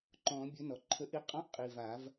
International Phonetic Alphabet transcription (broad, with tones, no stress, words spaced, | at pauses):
ǃɔ̃˨˩˦ bʲɵ˨˥ nɔ˩ǃʰə˨˥ ʔi˨˥qʼɔ̃˧˥˧ʔ qʼi˩˧˩va˨˩˦v